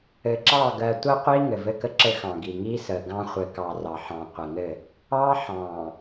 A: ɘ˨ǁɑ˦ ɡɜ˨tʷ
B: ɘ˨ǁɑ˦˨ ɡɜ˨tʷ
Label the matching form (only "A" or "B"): B